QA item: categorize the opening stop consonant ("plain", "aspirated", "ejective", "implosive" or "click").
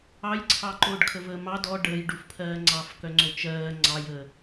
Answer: click